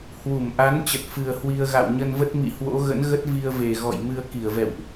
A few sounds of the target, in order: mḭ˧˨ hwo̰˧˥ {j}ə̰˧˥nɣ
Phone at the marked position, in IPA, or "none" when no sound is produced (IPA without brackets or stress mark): ɣ